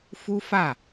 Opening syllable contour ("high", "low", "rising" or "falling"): high